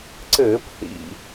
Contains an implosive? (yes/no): no